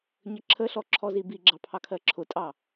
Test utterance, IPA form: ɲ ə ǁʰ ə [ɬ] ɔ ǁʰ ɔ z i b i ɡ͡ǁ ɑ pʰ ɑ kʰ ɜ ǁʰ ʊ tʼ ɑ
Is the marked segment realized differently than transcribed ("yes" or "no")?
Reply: no